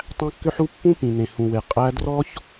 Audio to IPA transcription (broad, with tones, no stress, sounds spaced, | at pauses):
tˤ æ̃˦ kː ʏ˦ ħ u˦ pː ũ˦ p ĩ˨ n ẽ˨ h ũ˨ w e˨ qʼ æ˦ d r ɔ˦ ç